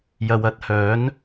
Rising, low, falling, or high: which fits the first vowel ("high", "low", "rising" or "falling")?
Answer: low